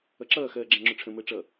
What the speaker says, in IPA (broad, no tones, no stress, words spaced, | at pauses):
ʌǁʌː xɜːɡ͡ǁæ̃ŋ͡ǁʊʈ͡ʂʰə̃ məːʈ͡ʂʌ